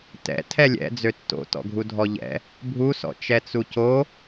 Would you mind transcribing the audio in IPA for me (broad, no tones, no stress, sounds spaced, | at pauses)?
t ɛ̰ tʰ ɛ lʲ ɛ̰ d͡z ø tː o̰ t ɔ̰ ɡʱ u dʱ ɔ ʎ ɛ̰ | bʱ u s ɔ̰ t͡ʃ ɛ t͡s u c o